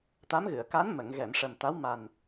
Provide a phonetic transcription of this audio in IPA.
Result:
t̪ a˧˥ m ɣ ɨ˨˩˨ ə̯ k a˧˥ n m ə˨˩˨ ŋ ɣ ɛ˨˩˨ m ʂ ə˨˩ m t̪ a˧˥ w m a˨˩ n

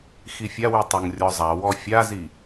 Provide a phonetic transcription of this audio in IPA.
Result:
x i fʲ a w ʉ tˤ o ŋ rʲ ɔ zˤ a w ɔ fʲ a z i

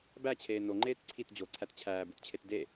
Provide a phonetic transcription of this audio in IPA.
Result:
b æ t͡ɕʰ eː n o ŋ͡ǃ eː t ǀʰ i t d͡ʑ o ǀʰ æ t t͡ɕʰ æː b u t t͡ɕʰ e t d e

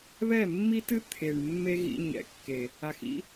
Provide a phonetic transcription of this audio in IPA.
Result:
β ɛ˦˨ mː i˦ t ɨ˦ t̪ʰ e˨ ɳ mː e˦ ɣ ḭ˧ ɲ ɛ̰˨ kː e˨ | a˨ x ḭ˦

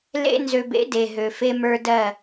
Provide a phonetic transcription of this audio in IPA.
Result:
l ḛ˦ n z ø˨ b ḛ˨˦ d e˨ ɦ ø˨ f e˦ m ə˞˦ d ɜ˦˨

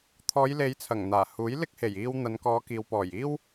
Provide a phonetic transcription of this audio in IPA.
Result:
t̪ʰ ɔː˨˧ j l e˨˧ j t͡sʰ ɐ˨˩ ŋ n̪ aː˨˩ h uː˨˥ j l ɪ˥ k̚ h e˨˩ j iː˧ w n̪ ɐ˨˧ n k ɔː˨˧ k iː˨ w p ɔː˨˩ j iː˥ w

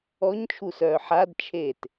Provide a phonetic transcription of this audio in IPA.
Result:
ɔ ɲ t͡ʃʰ u s œː ħ a d t͡ʃʰ eː t

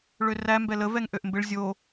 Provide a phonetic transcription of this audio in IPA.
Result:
ɭ ø r æ m b ɛ l ə v ɛ ŋ ʔ ø ʔ m b ɪ ɭ zʲ o

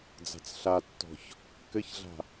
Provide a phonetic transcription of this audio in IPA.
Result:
d͡z a̤ t͡s ɬ a tː ɔ̤ ç | k ɘ ç ɮ a̤

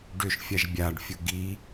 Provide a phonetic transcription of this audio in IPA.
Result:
ɖ ʏ ʃ fʲ a ʒ bʲ a ɖ fʲ ʊ ɡ i

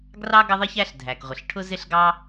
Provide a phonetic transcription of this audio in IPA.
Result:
ɡ r ɑ˥ ɡ ʌ˥ ðˤ i˥ ç æ˥ ɬ dʱ æ˩ k ʁʷ ə˩ ɬ ʈʰ ʊ˥ z ɪ˥ ɬ ɡ ɑ˥

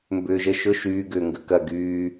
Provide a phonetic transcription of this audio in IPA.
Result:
m b ʏː ʒ ə ʃ ʊ ʃ yː ɡ ʏː ŋ ɡ ə k ɐ ɡ yː

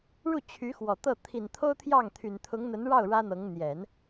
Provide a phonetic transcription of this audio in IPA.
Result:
ɻ u˥˩ t͡ɕʰ y˧˥ x w ɔ˨˩ t̪ ɤ˥˩ t̪ʰ i˨˩ n t̪ʰ o˥ ʊ̯ t̪ʰ j ɑ˥˩ ŋ t̪ʰ y˨˩ n t̪ʰ ʊ˧˥ ŋ n̪ ə˧˥ n ɻ ɑ˥˩ ʊ̯ ɻ ä˥ n̪ ɤ˧˥ ŋ n̪ j ɛ˨˩˦ n

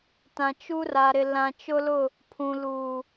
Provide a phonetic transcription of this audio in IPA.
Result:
t ã˨ t͡ʃ u˦ r a˨ ɾ ɪ˨ l ã˨ t͡ʃ ʊ˦ l ʊ˦˨ | pʰ ũ˨ l uː˨

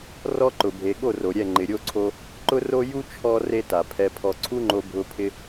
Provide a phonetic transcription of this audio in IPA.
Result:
r ɔ˧ ǃ ʊ˨ bʱ e˨ ɠ o˦˨ r o˨ ɾʲ ɛ˦˨ ŋ͡ǃ ɪ˨ ɾʲ o˧ ǀʰ o˧ | ǃ ʊ˦ r o˦ j u˦ t͡ʃʰ ɔ˧ r e˦ t a˨ pʰ ɛ˧ pʰ ɔ˧ ǀʰ u˦ ŋ͡ǃ o˧ bʱ ʊ˧ pʰ ɪ˦

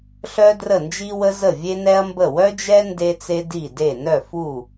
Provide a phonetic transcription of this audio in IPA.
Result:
ɬ œ˥ d r ə˥˩ n d͡ʒ i˥ w ə˥ z ə˥˩ vʲ e˥ n ɛ˥ ɐ̯ m b ə˥˩ w œ˥ d͡ʒ ɛ˥ n d e˥ t͡s e˥ d i˥˩ d e˥˩ n œ˥˩ f u˥˩

